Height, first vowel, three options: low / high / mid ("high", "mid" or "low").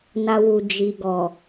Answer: low